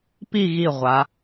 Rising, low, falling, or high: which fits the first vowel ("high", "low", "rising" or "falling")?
falling